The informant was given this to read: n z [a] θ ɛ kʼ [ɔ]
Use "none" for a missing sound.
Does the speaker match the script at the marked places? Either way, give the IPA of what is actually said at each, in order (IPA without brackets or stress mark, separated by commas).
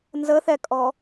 ə, ɔ